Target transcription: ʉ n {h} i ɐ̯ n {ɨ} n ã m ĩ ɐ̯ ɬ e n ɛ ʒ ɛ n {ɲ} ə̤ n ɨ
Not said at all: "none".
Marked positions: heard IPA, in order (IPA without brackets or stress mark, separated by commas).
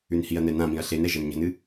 h, ɛ, ɲ